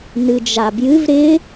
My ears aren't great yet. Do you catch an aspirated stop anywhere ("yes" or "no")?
no